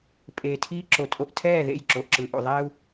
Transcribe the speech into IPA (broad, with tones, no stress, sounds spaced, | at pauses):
pʼ eː˨ tʰ iː˦ ǁ o˨ tʼ o˦ ʔ tʰ ɛː˦˨ ð ḛ˦˨ j ǁ o˨ ʔ ǁ ɯ˨ ʔ ṵ˨ ðˤ ɛː˦ u̯